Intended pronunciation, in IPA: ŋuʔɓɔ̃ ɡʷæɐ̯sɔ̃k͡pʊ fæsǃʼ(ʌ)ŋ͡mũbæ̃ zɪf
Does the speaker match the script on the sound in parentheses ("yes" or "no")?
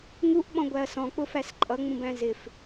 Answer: yes